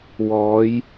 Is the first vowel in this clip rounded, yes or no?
yes